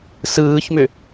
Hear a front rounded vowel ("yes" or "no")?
yes